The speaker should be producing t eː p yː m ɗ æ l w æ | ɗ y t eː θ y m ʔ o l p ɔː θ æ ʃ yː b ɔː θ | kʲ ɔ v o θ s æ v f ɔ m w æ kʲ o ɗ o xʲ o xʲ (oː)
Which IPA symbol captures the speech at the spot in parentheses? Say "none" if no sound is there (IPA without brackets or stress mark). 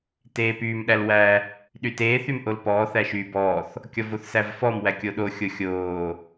oː